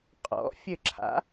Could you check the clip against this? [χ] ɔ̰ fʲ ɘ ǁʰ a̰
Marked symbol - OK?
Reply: no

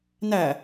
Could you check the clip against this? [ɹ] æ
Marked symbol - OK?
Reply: no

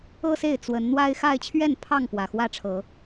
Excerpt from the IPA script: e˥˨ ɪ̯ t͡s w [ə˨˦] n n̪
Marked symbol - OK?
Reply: yes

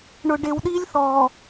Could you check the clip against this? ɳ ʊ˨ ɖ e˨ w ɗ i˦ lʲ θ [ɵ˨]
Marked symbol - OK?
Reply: no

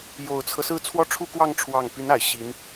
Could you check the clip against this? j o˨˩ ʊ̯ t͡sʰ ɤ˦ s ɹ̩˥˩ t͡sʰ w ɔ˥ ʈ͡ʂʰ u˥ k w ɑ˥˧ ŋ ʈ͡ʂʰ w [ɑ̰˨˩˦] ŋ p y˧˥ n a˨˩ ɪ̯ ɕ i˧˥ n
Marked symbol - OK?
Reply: no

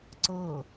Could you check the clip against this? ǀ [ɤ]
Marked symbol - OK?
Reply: yes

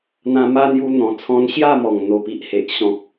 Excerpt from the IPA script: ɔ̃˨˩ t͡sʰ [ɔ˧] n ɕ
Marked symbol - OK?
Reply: no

